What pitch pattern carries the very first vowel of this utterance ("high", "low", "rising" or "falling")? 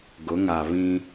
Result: rising